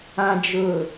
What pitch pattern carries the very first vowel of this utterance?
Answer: low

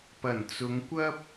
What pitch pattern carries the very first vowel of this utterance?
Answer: low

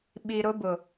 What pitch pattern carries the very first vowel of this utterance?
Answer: low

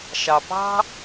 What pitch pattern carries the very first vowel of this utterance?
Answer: low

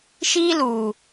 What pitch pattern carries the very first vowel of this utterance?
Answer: high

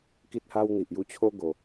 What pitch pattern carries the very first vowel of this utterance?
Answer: high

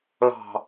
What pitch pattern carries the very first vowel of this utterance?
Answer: falling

